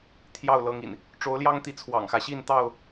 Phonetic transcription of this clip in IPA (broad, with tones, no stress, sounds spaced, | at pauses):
t̪ʰ j ɑ˥˨ ʊ̯ l ɤ˨˦ ŋ ḭ˨˩ n | ʈ͡ʂ o˨˦ ʊ̯ l j ɑ˦ ŋ t̪ i˨˦ t͡sʰ w ɑ̰˨˩ ŋ x ä˦ ɕ i˥˨ n t̪ ɑ˥˨ ʊ̯